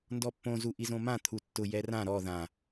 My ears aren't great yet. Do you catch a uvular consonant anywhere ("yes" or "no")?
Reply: no